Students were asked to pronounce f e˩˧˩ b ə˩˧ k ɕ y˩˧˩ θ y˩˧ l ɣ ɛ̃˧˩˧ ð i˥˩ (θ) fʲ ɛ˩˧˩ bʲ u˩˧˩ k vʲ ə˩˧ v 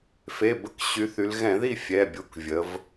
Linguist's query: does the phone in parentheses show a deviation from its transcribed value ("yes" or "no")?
yes